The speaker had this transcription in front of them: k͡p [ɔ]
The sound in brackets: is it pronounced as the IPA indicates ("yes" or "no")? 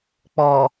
yes